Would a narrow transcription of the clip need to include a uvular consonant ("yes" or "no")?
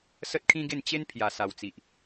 no